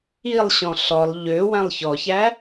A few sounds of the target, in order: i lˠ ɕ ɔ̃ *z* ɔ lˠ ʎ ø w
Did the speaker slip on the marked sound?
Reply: yes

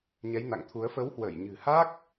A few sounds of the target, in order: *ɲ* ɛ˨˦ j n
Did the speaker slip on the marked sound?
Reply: no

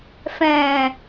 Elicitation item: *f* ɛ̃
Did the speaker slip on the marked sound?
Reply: no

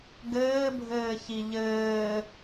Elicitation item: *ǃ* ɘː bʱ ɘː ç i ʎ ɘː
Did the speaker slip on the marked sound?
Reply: yes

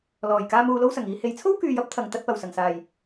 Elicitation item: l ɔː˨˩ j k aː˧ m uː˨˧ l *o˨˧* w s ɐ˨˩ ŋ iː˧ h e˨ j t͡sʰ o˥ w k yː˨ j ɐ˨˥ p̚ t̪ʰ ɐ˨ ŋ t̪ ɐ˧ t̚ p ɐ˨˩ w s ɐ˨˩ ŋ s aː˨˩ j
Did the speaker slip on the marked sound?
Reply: yes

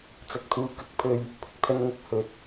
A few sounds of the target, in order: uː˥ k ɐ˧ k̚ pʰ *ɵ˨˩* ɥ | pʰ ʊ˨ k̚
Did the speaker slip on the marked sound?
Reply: yes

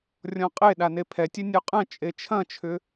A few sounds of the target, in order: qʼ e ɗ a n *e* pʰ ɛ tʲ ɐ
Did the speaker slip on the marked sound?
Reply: no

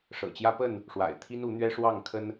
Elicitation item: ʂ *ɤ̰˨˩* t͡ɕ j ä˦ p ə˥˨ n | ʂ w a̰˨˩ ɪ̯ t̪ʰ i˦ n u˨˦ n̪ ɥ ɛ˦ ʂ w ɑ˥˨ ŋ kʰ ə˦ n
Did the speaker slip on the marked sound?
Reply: no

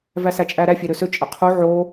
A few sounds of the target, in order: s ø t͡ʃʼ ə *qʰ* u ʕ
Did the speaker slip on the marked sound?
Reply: no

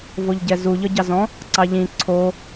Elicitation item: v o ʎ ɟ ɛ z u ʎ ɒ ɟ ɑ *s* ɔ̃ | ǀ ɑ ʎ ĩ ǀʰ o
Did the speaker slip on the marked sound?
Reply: yes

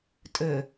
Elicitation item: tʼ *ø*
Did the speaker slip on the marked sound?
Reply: no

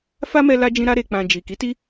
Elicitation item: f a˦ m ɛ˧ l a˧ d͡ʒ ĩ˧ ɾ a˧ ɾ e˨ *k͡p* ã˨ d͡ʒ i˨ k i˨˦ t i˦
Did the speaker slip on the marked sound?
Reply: no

